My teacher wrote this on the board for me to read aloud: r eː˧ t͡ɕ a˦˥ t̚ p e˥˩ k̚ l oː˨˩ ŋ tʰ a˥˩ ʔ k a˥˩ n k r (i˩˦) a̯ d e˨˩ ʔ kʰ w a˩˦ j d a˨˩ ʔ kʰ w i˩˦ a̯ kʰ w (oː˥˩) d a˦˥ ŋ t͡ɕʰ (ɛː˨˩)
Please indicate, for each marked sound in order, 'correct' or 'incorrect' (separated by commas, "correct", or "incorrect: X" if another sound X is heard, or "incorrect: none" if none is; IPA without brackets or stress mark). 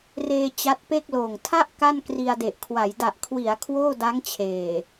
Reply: incorrect: i˧, correct, incorrect: eː˨˩